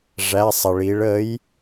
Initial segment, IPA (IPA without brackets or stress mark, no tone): ʐ